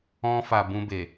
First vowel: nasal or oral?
nasal